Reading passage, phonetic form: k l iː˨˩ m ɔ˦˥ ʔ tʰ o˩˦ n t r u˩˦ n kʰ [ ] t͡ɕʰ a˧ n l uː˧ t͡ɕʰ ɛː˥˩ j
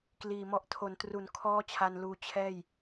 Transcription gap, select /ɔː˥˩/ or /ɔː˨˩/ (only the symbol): ɔː˥˩